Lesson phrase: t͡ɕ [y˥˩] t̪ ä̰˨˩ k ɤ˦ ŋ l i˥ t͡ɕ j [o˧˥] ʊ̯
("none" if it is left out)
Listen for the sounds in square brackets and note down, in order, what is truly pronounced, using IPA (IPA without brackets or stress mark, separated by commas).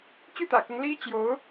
y˥˩, o˧˥